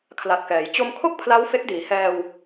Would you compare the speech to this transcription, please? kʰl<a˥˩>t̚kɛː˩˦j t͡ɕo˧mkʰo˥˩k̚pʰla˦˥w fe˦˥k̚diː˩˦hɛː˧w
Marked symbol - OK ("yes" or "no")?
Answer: no